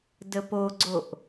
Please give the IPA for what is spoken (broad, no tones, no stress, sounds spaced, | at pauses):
d ə p o ɡ͡ǀ o ʔ